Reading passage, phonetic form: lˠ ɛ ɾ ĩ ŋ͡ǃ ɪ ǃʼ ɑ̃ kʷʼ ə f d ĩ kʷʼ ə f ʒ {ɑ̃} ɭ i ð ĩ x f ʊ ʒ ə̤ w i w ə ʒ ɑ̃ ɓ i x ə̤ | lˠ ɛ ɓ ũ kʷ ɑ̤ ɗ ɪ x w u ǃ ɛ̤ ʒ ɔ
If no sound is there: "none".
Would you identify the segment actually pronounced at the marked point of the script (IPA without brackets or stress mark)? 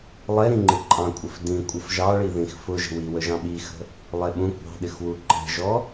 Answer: ɑ